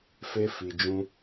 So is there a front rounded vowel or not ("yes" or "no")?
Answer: no